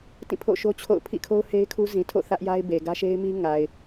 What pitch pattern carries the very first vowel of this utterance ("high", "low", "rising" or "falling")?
falling